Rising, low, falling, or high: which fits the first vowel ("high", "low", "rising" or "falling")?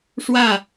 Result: falling